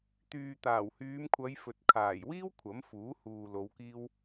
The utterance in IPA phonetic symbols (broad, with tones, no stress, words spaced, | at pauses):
t̪yː˨t̪aː˨˩whyː˨˧mkʷʰɐ˨˧j fɵ˨t̚kʰaː˨˩jwiː˥w kʷʰɐ˨˥mfuː˨˥huː˨ lo˨˧wkiː˥w